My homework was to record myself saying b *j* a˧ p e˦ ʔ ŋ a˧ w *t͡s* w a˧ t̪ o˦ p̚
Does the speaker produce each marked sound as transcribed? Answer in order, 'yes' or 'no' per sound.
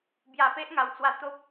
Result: yes, yes

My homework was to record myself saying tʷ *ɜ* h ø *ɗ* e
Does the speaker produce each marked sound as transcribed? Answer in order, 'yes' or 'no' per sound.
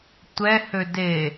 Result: no, no

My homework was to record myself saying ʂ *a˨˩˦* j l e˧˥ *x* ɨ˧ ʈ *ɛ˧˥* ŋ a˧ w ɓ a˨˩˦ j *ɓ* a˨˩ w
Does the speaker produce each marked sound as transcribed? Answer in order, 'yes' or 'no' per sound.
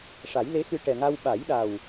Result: yes, yes, no, no

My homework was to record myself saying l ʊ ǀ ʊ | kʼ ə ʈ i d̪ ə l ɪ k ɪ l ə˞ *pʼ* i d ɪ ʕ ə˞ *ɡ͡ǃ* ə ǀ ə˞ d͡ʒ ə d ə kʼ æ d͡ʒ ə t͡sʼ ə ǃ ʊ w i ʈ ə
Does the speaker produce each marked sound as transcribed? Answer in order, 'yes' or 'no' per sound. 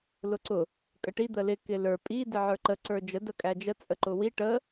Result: yes, no

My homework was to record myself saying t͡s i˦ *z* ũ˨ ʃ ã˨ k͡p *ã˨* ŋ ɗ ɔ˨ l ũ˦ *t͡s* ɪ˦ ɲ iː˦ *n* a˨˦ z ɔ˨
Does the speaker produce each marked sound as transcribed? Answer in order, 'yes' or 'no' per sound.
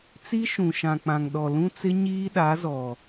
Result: no, yes, yes, no

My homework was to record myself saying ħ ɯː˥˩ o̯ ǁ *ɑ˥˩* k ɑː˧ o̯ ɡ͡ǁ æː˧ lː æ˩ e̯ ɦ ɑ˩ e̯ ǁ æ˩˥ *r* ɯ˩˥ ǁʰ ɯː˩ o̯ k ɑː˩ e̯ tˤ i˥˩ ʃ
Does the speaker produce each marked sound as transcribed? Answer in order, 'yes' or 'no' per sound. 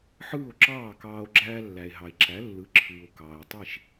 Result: no, no

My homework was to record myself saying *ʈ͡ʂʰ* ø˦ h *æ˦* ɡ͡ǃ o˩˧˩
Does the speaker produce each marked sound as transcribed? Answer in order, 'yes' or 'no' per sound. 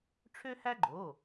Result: yes, yes

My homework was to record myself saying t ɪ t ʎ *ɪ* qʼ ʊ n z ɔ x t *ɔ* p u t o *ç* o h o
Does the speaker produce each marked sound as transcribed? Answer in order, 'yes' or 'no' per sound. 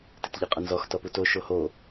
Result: yes, yes, no

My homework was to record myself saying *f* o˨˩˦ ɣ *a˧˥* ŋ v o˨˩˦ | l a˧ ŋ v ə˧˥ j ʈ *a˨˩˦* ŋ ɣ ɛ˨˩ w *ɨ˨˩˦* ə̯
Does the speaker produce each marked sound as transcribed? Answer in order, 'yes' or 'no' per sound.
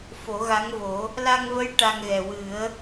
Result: yes, yes, no, yes

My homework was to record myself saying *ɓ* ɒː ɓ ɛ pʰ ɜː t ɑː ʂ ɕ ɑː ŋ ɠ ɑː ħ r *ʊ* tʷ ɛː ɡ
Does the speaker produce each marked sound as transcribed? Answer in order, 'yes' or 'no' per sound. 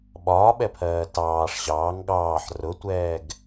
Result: yes, yes

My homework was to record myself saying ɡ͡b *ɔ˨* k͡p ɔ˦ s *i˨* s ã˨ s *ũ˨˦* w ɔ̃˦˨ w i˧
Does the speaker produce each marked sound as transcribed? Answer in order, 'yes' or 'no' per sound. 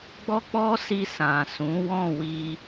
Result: no, no, yes

